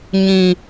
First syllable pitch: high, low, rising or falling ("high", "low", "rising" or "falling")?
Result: high